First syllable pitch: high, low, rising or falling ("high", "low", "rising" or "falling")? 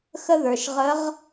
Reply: high